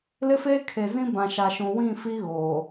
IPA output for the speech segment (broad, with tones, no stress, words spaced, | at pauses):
lɪ˦feː˦kʰe˨zĩ˦ bã˨ʃa˨ʃũ˨ wĩ˦˨fi˦ ɣoː˨